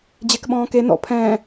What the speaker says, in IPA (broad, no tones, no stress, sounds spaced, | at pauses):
d͡ʑ e k ɓ ɔ̃ː k e n ɔ̰ pʰ ɛ̃ː